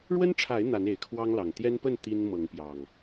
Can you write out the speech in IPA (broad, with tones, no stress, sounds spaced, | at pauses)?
ɻ w ə˦ n ʈ͡ʂʰ a˨˦ ɪ̯ n̪ a˨˦ n e˨˩ ɪ̯ kʰ w ɑ˦ ŋ l ɑ˨˩ ŋ t̪ j ɛ˦ n p ə˥˨ n t̪ i˦ n m ɤ˨˦ ŋ p j ɑ˨˩ ŋ